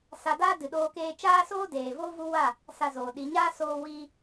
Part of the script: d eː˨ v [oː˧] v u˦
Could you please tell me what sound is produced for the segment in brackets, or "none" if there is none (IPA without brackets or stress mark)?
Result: oː˦